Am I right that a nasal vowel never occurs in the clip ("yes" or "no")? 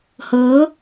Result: yes